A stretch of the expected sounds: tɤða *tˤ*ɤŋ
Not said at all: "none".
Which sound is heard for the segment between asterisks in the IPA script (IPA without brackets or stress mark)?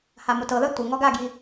tʷ